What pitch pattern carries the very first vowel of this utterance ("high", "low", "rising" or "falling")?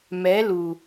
rising